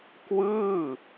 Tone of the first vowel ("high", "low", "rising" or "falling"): falling